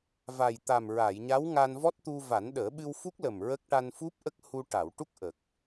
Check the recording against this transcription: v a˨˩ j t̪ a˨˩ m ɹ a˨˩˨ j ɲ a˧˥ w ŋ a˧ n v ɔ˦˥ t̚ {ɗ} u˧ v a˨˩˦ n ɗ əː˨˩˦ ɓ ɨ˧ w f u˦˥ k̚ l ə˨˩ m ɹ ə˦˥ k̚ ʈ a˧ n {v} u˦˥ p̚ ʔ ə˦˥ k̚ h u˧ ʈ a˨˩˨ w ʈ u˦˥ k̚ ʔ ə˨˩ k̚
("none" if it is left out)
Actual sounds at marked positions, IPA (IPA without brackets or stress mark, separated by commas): t̪, f